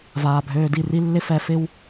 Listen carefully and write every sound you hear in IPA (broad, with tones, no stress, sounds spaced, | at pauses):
v aː˨ bʱ øː˧ d i˦˨ r i˦ lː ɪ˦ f ɛ˧ f ɪ˦ w